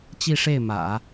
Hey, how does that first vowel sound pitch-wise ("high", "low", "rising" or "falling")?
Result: falling